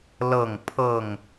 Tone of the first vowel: falling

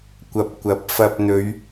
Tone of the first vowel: low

